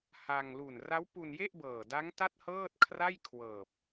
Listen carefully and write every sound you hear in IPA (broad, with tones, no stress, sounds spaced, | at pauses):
h a˧ ŋ l u˨˩ n r a˦˥ w p u˧ n j e˥˩ ʔ b ɤː˨˩ d a˦˥ ŋ t a˥˩ t̚ h ɤː˥˩ t̚ kʰ r a˥˩ j kʰ w ɤː˨˩ p̚